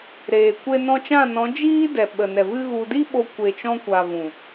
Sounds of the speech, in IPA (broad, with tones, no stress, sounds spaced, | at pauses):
ɾ eː˨ kʷ e˧ n ɔ̃˧ t͡ʃ ã˦˨ n ɔ̃˨˦ d͡ʒ iː˦ d ɛ˨ ɓ ə˨ n ɛ˨ v ɨ˦ ɣ u˧ d i˦ ɓ o˧ kʷ e˨ t͡ʃ ɔ̃˧ kʷ a˨ v ũ˨